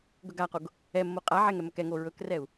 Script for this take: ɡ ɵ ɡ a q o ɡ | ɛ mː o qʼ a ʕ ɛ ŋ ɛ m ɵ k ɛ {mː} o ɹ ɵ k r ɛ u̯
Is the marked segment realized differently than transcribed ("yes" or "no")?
yes